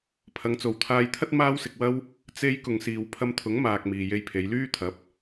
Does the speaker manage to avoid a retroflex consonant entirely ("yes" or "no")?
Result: yes